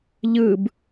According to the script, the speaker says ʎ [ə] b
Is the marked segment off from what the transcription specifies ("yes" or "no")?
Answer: yes